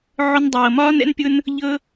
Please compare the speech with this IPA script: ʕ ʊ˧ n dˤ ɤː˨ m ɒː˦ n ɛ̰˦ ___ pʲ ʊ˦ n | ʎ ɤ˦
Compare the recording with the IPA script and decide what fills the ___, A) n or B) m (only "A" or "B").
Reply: A